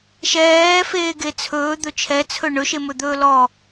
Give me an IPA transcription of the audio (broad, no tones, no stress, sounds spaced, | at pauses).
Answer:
ʃ ɛː f eː ɡ e t͡sʰ ɵː d̪ ɵ t͡ʃʰ ɛ t͡sʰ ɵ ɳ ɵ ʃ e m ɵ d̪ ɵː l ɔ